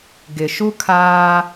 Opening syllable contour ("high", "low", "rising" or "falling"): low